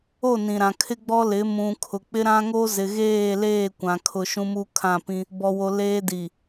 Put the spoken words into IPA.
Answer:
o˦˨ n ĩ˨ ɾ ã˨ kʰ ɪ˦ ɡ͡b ɔ˦ l ɪ˨˦ m ũ˨ kʰ ʊ˨ k͡p ɪ˦ ɾ ã˦ ŋ o˦ z ɪ˨ ɣ eː˦˨ l eː˦˨ kʷ ã˨ kʰ ʊ˨ ʃ ũ˦ m u˦ kʰ ã˦˨ p ĩ˦ | b ɔ˨ w o˨ l eː˦ d i˨

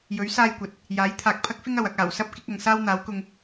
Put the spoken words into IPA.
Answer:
j ɵ˨˥ ɥ s aː˥ j kʷ ɐ˨˥ t̚ | j aː˨˥ j t̪ʰ aː˨ k̚ pʰ ɐ˥ k̚ f ɪ˥ ŋ ɐ˨ w ɐ˧ k̚ aː˨˩ w s ɐ˥ p̚ k ɪ˨˥ k̚ ɐ˨ ŋ s aː˥ w n̪ aː˨˥ w k ʊ˧ ŋ

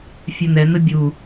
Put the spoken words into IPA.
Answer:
fʲ œ n̪ ɛ n̪ ə bʲ u

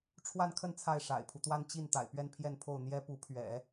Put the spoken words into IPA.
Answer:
ʈ͡ʂʰ w a˥˧ n kʰ ə˥˧ n t͡sʰ a˥˩ ɪ̯ ʂ a̰˨˩ ɪ̯ pʰ u˦ t̪ w a˥ n t͡ɕ i˥˩ n t̪ a̰˨˩ ɪ̯ p ɥ ɛ˥˧ n pʰ j ɛ˥˧ n pʰ o˥˩ ʊ̯ n̪ j ɛ˥ p u˧˥ pʰ ɥ ɛ̰˨˩˦

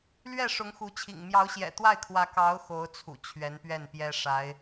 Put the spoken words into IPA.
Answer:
l ɥ ɛ˥˩ ʂ ʊ˧˥ ŋ x u˧˥ t͡ɕʰ ḭ˨˩ ŋ m j ɑ˧˥ ʊ̯ ɕ j ɛ̰˨˩ t̪ w a˥˩ ɪ̯ kʰ w ä˧˥ k ɑ˧˥ ʊ̯ x o˧˥ ʊ̯ t͡sʰ ṵ˨˩ t͡ɕʰ ɥ ɛ˧˥ n p ɥ ɛ˥˩ n p j ɛ˥ ʂ a˧˥ ɪ̯

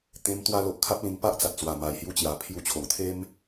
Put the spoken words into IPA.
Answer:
t̪ ẽ˧ m t̪ w a˧ l o˨ ʔ kʰ a˦ p̚ l ĩ˧ ŋ p a˦ ʔ t͡s a˨ t̚ t͡s w a˨˩ m a˨˩ j h j u˧ t͡ɕ j a˨˩ pʰ j u˧ t͡ɕʰ o˨˩ ŋ t̪ʰ e˦ m

